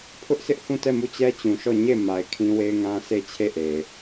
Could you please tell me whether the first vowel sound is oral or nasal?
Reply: oral